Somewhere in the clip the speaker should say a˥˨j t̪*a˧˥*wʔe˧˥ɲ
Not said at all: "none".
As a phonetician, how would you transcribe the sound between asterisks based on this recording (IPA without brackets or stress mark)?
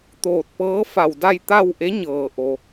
a˥˨